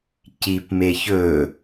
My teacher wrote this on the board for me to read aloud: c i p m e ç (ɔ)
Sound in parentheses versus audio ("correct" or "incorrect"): incorrect